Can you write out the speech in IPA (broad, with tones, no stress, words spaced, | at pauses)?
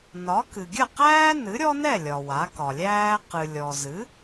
nɒ˩˥ kɨ˩ɡʲə˥˩qæː˥ nɨ˩˥ɾʲɔ˥nɛ˥˩ lʲɒ˩wa˩˥kɒ˩lʲæː˥ qɨ˩lʲɔ˩zɨ˩˥